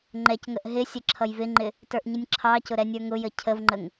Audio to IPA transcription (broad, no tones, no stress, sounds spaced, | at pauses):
ŋ͡ǃ ɛ c ŋ ə ʔ ɦ ɪ sʲ ə ǁʰ ʌ j v ɪ ŋ͡ǃ ɪ | t ə˞ ʔ ɲ ə nʲ ǁʰ ɑ c ʊ ɾ ɛ nʲ ə˞ ŋ ʊ j ə cʰ ə v ŋ͡ǃ ə ŋ